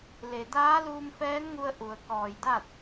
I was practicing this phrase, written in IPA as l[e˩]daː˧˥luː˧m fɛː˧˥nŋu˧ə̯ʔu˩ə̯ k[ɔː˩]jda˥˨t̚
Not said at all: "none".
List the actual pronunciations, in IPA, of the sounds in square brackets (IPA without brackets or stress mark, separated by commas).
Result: e˩, ɔː˧˩